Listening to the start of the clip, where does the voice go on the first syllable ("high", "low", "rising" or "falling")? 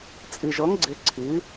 low